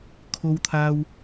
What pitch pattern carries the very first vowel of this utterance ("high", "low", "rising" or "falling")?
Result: high